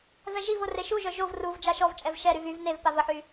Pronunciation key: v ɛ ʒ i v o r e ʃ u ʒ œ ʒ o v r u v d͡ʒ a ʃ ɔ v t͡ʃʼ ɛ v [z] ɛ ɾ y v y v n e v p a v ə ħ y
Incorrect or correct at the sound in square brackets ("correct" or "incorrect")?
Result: incorrect